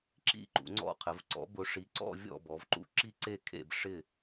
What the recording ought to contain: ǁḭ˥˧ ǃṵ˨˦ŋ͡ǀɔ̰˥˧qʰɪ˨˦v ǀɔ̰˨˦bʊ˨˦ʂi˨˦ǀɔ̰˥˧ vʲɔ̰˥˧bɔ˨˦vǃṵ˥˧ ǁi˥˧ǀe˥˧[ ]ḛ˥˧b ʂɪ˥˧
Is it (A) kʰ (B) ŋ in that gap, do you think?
A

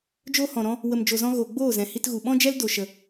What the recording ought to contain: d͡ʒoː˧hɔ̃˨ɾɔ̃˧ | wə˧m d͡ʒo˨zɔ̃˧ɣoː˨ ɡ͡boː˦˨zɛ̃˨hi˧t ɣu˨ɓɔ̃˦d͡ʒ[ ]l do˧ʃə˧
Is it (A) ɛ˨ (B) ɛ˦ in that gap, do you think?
B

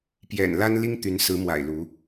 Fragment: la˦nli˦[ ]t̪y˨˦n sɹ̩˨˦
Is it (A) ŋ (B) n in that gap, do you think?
A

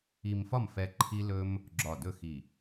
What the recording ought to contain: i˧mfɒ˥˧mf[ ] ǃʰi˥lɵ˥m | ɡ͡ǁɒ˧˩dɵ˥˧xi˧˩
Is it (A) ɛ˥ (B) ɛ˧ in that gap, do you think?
B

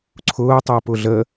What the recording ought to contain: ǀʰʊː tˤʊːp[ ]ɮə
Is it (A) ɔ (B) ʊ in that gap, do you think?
B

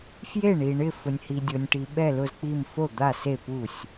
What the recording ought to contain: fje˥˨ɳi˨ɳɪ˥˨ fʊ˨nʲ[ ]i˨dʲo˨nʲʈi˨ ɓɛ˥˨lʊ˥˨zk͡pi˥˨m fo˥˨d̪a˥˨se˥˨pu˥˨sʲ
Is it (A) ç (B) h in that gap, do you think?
B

